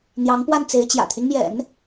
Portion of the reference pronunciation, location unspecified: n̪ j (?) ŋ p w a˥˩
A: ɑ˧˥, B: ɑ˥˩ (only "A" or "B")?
A